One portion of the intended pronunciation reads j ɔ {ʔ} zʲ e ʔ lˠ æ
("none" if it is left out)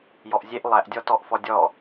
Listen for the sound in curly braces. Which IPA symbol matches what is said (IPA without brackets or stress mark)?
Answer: ʔ